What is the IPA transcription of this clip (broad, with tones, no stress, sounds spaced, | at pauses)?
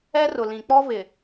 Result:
ɛ˦ r ʊ˨ l ĩ˨ k͡p ɔ˦ v ɪ˨